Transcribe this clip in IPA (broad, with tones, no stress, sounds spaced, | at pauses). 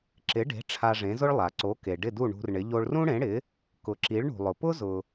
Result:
ǁ ɪ˩˥ ɖ e̤˩˥ ʈ͡ʂʰ a˧ ʐ ẽ˩˥ z ʊ˥ ɭ lˠ a˩ ǀ o˩˥ k e˩ ɖ ɪ˥˩ d u˥˩ ɳ ṳ˧ r ɳ ɪ˩˥ ʎ o˧ ɭ r ũ˥ ɽ ẽ˩˥ ɽ ɪ˩˥ | k ʊ˩˥ ǁ i˩˥ ɭ ɳ ṳ˩ lˠ ʊ˩ p ʊ˥ z ʊ˩